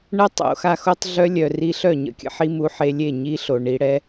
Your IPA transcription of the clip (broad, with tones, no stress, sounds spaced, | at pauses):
ɳ ə˦ tˤ o̰˨˦ x a˧ x o˦ tˤ ɮ œ˦ lʲ œ˨ r i˧ ɬ œ˦˨ ɲ ə̰˦ kʲ ə̰˦ ħ i˦ m u˧ ħ e˧ lʲ e˦˨ ɲ i˦ ɬ o˨ ɳ i˧ ɽ ɛ˦